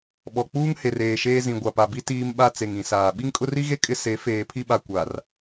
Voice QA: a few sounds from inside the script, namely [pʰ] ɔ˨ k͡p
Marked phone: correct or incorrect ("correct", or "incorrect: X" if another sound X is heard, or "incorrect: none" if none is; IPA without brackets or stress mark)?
incorrect: ɓ